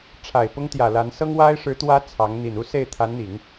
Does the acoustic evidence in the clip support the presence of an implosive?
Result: no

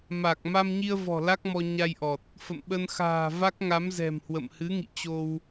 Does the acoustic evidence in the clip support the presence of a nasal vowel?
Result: no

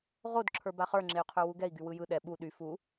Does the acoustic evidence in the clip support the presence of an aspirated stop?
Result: yes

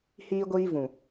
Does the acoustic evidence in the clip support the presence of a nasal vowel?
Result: yes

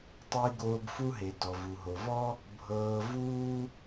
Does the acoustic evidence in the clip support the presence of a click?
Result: no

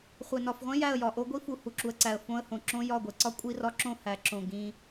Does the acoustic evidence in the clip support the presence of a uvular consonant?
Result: yes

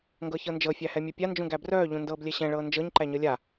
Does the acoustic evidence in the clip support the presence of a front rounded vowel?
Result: yes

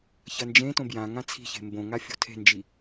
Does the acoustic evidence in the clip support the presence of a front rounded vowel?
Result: no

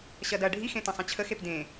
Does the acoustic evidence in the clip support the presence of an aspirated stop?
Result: yes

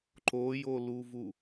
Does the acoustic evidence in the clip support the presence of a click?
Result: yes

